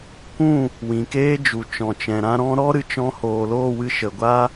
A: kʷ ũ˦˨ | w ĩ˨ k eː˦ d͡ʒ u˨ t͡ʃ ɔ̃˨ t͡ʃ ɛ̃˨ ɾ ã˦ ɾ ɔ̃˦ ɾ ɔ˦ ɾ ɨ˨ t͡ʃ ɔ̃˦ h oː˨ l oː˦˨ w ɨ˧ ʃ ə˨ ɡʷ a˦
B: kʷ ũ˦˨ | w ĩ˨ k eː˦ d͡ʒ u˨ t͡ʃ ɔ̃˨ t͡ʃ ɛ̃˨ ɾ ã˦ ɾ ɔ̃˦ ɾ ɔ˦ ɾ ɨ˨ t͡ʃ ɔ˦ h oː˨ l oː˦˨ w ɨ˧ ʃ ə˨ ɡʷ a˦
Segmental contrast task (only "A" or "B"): A